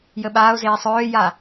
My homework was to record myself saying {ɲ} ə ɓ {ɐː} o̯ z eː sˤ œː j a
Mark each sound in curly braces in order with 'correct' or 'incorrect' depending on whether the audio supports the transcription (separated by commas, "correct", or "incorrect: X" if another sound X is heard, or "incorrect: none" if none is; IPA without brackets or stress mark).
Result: incorrect: j, incorrect: aː